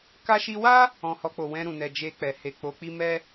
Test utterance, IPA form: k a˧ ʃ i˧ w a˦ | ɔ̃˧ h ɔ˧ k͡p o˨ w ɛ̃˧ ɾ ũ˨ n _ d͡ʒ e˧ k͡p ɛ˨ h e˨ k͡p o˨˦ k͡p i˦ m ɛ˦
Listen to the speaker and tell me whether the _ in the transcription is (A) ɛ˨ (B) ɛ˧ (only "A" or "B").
A